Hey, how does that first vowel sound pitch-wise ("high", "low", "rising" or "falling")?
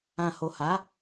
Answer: low